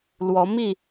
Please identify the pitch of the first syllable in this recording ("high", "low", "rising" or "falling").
rising